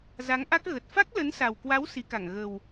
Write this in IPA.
z a˨˦ ŋ ʔ a˦˥ k̚ ɣ ə˨˩ t̚ f a˦˥ k̚ l ə˨˦ n s a˨˩ w k w a˨˦ w s i˨˦ k a˧˩ ŋ ɣ ə˨˩ w

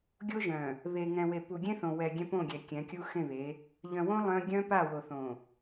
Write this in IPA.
ɡʲ o˦ ʒ œ̃˨ | β e˨ ŋ ɛ̃˨ w e˨ p u˨ ɡʲ ẽ˦ θ õ˨ w ɛ˨ ɡʲ ɛ̃˦ p õ˦˨ ɡʲ ɛ˨ kʲ ɛ̃˨˦ kʲ u˦ x ẽ˦˨ β e˨˦ | ʎ œ̃˨ w õ˦ lˠ œ̃˦ ɡʲ œ̃˦ p a˦˨ w o˨ θ õ˨

